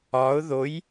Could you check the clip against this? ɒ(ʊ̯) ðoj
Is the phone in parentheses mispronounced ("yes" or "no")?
no